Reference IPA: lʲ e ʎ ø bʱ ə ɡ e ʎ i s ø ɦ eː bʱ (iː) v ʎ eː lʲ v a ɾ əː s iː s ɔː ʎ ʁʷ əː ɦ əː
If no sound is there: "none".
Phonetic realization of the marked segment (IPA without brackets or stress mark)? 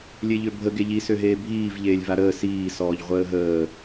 iː